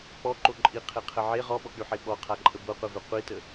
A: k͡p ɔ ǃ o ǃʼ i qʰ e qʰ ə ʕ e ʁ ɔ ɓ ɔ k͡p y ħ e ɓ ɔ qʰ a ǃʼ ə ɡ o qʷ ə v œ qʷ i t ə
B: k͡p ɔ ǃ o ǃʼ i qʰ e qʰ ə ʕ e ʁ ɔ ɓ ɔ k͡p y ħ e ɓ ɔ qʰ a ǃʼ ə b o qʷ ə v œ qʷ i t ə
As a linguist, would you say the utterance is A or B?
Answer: B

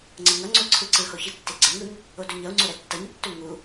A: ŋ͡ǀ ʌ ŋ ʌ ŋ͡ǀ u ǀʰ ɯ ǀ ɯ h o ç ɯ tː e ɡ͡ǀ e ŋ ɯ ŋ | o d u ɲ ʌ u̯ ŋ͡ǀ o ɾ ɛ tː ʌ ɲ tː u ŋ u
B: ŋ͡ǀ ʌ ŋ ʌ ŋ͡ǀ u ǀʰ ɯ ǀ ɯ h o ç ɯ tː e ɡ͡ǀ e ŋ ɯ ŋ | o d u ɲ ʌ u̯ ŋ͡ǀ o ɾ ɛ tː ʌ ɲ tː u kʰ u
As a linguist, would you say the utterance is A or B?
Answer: A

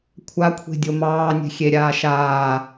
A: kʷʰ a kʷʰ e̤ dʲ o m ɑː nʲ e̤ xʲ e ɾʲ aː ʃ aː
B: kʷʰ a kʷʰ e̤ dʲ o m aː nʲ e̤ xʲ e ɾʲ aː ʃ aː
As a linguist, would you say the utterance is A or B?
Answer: A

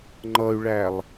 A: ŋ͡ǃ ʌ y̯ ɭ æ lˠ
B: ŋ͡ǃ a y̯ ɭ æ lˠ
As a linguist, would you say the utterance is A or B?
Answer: A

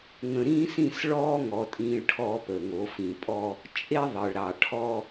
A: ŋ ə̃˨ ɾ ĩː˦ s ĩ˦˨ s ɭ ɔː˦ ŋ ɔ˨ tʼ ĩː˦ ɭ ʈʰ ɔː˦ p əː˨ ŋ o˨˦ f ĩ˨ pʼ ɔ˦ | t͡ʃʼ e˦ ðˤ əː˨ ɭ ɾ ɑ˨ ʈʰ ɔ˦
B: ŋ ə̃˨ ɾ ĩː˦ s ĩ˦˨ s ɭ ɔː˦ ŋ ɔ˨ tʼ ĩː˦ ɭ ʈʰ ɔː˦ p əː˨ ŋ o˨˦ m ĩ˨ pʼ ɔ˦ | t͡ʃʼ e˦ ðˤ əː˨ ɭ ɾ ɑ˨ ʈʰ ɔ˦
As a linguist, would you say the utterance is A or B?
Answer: A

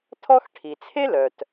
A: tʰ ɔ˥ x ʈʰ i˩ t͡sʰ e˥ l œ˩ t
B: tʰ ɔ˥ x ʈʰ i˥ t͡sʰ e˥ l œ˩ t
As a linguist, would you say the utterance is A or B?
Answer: A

